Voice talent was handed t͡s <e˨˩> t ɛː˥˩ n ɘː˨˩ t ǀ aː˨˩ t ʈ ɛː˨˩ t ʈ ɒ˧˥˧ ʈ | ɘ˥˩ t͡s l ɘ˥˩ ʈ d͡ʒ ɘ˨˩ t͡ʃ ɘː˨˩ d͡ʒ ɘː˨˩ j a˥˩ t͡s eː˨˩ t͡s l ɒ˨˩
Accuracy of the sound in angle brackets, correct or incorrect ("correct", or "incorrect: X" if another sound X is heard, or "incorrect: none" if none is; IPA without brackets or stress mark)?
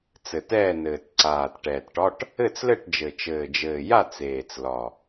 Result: incorrect: ɘ˨˩